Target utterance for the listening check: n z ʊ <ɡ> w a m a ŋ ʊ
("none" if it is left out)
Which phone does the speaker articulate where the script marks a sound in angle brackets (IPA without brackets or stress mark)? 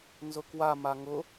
k